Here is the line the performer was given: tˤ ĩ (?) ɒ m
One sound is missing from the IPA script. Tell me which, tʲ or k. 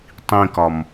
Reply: k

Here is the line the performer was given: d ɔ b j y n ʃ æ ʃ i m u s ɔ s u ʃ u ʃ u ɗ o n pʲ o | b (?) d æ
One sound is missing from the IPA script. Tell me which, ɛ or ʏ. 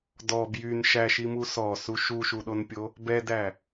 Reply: ɛ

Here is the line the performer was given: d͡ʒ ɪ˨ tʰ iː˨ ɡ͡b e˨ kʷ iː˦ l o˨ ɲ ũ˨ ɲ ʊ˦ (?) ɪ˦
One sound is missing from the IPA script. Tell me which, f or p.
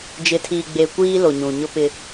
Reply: p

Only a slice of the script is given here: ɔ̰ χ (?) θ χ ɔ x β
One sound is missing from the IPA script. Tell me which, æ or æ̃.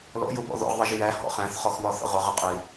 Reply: æ̃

